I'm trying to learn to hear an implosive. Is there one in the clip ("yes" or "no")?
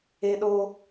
yes